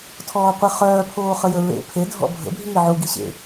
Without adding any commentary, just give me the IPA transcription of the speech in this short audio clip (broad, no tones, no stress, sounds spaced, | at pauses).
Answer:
tʰ ɔː qʷ e χ œː pʰ oː χ ə j ə ɹ ḛ pʰ e dʱ ɔ̰ bʱ ə̰ bʱ iː ʕ u ɡ i ɕ ḛ